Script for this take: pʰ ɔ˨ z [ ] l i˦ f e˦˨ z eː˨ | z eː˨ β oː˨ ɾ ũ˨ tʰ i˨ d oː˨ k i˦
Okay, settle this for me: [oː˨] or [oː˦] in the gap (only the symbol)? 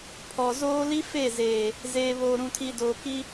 oː˦